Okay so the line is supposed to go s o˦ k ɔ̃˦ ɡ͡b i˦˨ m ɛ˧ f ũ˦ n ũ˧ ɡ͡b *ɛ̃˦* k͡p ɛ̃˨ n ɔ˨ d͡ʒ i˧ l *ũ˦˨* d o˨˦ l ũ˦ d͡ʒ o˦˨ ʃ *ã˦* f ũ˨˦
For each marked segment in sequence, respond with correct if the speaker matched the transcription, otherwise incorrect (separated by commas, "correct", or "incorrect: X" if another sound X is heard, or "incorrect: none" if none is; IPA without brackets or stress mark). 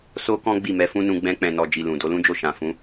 incorrect: ɛ̃˧, incorrect: ũ˨, incorrect: ã˨